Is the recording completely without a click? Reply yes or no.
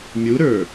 yes